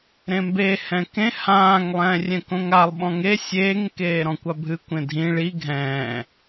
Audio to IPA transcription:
ɾ ẽ m b e h ɛ̃ k ẽ h ãː ŋ lˠ ɛ̃ː rʲ ɛ̃ k õ ŋ a lˠ ɓ ɔ̃ ŋ e sʲ eː ŋ k eː ɾ ɔ̃ kʷ a bʱ ɨ kʷ ẽ dʱ ĩ ɭ i ɡʱ ɛ̃ː

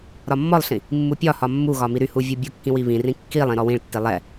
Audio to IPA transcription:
ɾ ɒ mː ɔ lˠ ɬ ĩ | mː u pʲ ɒ h ɒ mː u ɣ ɒ m i ɾ y h u vʲ u bʲ u kː ĩ w i β ĩ r ĩ kː i lˠ ĩ ɾ ɔ w ĩ ɭ tː i lˠ ɛ

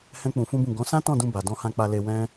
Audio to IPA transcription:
h ɛ̃˦ k͡p ũ˧ f ũ˦ b ũ˦˨ ɡ ɔ̃˨˦ s ã˦ t ɔ̃˦˨ d ũ˧ b a˨ d ɔ̃˧ h ã˧ k͡p a˧ l e˧ w ɛ̃˦

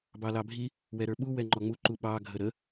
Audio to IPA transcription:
b ɑ l ɑ bʱ i | w ɛ ɾ ə˞ ɓ u w ɛ ŋ͡ǃ ɔ ŋ͡m u ǃ u ɓ ɑ ɡʱ ə ɾ ə

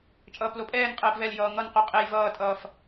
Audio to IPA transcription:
t͡ʃʼ ʌː p l o pʼ ɛː n qʼ ɛː p v ɛ l j ʌː ŋ ʌ n q u qʼ e j v ʌː tʼ ʌː f

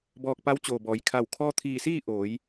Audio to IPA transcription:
b ɔː˧ k̚ p a˧˥ w t͡ɕ oː˩ b ɔː˩˧ j kʰ a˧˩ w kʰ ɔː˧ t̪ʰ iː˧˩ s iː˥˨ ʔ oː˩˧ j

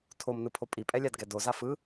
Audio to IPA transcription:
tʰ o m n ɯ pʰ o pʼ i pʼ ɛ lʲ a d ɡ ɛ d o z a f ɯ

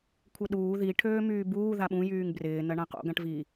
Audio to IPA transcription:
kʷʰ ɪ ɗ uː ð i ʈʰ øː m yː b uː ð a ɓ ũ j yː ŋ b r ɪː n ɐ ɳ ã q o̰ ɡ ã ʈ v i

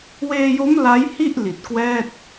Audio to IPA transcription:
w eː˧ j o˦˥ m l a˦˥ j h i˥˩ ʔ l i˨˩ t̚ k w ɛː˥˩ t̚

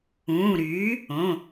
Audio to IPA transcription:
ũː˩˧˩ ɾ yː˩˥ | õ˩˧˩

